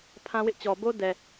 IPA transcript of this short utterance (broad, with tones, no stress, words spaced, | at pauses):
pʰã˦wɪ˦ʔt͡ɕɔ˨ bo˦ dɛ˨